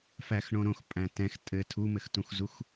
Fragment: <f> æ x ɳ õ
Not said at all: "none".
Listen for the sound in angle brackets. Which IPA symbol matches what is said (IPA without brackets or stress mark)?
f